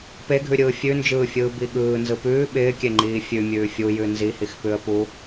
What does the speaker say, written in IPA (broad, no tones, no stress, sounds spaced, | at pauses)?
p e ɡʱ ʉ ɾʲ ɯː fʲ ʉ n d͡ʒ ɯː fʲ ɯː b i ɠ ɯː n z ɯ p ʉː ɓ ɪː kʲ e ŋ͡ǃ iː fʲ ʉ mʲ ʉː fʲ u j ʉ n z i h i x p ʉ ə̯ p u